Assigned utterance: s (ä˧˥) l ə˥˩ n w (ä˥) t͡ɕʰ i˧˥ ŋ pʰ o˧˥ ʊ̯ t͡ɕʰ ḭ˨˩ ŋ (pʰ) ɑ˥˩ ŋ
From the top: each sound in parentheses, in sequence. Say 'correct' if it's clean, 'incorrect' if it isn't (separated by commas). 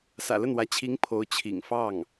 incorrect, incorrect, incorrect